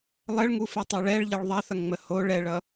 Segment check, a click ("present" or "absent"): absent